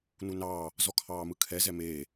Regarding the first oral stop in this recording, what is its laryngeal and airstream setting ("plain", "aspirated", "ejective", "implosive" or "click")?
aspirated